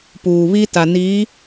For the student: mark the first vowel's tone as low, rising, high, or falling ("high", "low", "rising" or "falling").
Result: low